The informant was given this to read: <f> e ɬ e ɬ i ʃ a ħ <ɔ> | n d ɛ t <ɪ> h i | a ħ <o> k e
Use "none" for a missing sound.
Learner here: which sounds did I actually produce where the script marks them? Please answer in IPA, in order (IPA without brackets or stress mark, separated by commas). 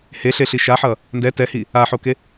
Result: h, ʌ, ɛ, o